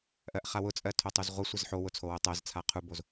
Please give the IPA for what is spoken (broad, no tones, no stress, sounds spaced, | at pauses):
ʔ ɜ ʔ χ a w ʊ t͡sʼ ɜ tʰ o tˤ u z ʁʷ ɘ sʷ ɘ z ħ o w ʊ t͡sʰ o w o tˤ ɜ z t͡sʰ a qʰ u b o z